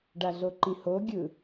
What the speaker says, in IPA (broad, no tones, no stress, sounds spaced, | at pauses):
ɖ a ɮ o ǃ ĩ h o ɡʲ ɯ